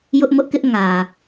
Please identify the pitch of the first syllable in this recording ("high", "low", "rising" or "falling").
high